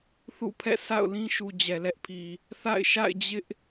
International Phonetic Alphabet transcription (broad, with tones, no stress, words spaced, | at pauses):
θṵ˦˨pʰɛ̰˦˨ sa̰˦˨ʊ̯lĩ˦ʃu˨ d͡ʑɛ˨lɛ˦ʔpʰi˨ | θa̰˦˨ɪ̯ ʃa̰˦˨ɪ̯d͡ʑɪ˦ʔ